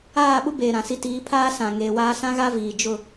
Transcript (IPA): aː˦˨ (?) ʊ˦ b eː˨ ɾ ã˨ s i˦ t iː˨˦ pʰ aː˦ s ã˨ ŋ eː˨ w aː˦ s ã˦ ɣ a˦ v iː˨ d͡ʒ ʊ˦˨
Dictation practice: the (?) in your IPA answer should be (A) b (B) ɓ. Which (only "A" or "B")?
B